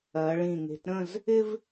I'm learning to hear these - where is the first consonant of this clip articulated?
retroflex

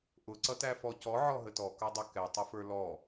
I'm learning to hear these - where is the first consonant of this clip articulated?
throat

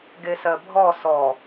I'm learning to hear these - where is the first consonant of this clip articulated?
velum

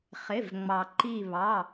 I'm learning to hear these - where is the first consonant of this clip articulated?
uvula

